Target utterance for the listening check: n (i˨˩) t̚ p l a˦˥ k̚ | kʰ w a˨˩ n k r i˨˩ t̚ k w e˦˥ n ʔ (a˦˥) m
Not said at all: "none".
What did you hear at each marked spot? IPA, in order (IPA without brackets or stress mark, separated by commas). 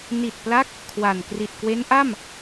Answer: i˨˩, a˥˩